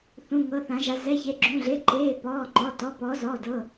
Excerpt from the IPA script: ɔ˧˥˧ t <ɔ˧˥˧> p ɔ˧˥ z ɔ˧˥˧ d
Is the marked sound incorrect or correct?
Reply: correct